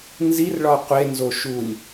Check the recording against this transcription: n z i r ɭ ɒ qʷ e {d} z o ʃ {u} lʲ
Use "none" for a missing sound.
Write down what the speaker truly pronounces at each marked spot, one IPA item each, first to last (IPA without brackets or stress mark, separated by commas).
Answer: n, u